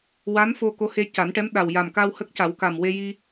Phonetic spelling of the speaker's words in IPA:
w a˧˥ n f o˧ k o˧˥ h e˧ c a˨˩˦ n ʈ ɛ˧˥ m ɗ a˨˩ w j a˨˩ m k a˧ w h ə˦˥ k̚ c a˨˩˦ w k a˨˩ m w e˧ j i˧

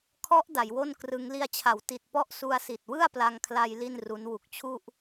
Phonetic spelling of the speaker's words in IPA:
kʰ ɔ˦˥ ʔ d a˩˦ j w o˥˩ n k r ɯ˦˥ ŋ l i˧ a̯ t͡ɕʰ a˩˦ w t i˨˩ t̚ p ɔ˦˥ ʔ s u˧ a̯ s i˨˩ t̚ w ɯ˥˩ a̯ p l a˧ ŋ kʰ l a˧ j l i˥˩ n r u˦˥ n w u˨˩ k̚ t͡ɕʰ u˥˩ ʔ

